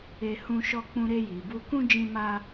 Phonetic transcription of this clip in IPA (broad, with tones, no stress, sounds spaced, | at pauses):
e˧ h ũ˧ ʃ ɔ˧ k͡p ũ˧ ɾ e˧ j i˨ b u˧ k ũ˦ d͡ʒ ĩ˦ m a˦